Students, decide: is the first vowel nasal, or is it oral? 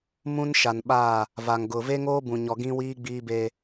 nasal